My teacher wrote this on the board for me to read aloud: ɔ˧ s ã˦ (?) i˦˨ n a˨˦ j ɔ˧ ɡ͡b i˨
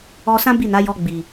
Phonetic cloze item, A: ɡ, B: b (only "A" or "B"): B